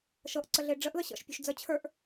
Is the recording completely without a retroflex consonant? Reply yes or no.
no